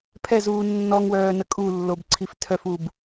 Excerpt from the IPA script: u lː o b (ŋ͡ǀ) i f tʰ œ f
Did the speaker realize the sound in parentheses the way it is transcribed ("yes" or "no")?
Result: no